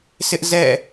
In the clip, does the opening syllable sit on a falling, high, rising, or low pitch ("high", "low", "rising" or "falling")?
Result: high